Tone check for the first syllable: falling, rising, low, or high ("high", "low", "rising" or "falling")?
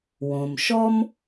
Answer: low